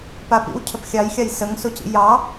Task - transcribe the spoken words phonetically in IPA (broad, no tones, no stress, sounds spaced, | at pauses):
p a p ḭ w cʰ ə p xʲ ɑ j xʲ ɑ j s ə ŋ s o c ḭ j ɑ